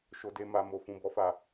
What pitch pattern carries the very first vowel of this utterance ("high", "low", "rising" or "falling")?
low